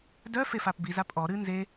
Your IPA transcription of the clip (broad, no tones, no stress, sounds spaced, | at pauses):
d œ f e f a p b i z a pʼ ɔ ɾ ɨ n z e